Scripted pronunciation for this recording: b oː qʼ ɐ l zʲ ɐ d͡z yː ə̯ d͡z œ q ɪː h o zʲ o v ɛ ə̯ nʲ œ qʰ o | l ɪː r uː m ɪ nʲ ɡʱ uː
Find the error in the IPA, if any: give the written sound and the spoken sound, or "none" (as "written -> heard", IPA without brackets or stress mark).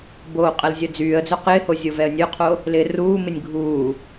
none